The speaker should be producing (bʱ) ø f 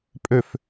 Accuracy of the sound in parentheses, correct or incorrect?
incorrect